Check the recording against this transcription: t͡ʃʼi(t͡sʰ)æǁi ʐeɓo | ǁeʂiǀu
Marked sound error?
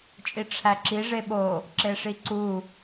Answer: yes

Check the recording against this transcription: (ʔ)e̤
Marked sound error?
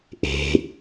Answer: no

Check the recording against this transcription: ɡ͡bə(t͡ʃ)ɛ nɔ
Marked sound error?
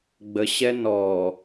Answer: yes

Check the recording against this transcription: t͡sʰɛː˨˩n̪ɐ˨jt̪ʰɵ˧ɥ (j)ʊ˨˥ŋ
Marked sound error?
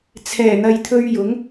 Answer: no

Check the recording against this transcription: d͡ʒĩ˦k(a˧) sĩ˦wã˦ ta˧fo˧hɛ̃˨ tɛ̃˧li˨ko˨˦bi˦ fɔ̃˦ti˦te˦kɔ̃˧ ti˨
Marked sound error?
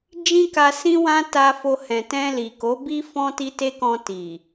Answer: no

